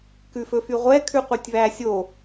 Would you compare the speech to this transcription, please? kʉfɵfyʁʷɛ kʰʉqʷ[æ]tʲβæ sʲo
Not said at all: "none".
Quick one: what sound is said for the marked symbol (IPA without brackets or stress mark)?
œ